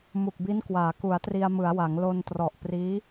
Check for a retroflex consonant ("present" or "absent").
absent